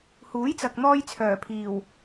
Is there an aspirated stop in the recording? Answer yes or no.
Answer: yes